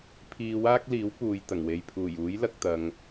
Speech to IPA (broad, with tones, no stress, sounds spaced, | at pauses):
pʰ iː˧ w aː˥ k̚ l iː˨˥ w p uː˨ j t̪ ɐ˨˩ ŋ w e˨ j pʰ uː˨˩ j uː˨˥ j l ɐ˧ k̚ t̪ ɐ˨ ŋ